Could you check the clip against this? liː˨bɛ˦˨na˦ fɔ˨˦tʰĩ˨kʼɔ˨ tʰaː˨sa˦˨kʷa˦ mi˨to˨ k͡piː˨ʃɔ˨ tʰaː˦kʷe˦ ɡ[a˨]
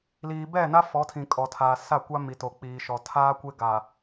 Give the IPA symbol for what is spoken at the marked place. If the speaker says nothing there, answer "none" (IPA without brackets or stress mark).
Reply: a˨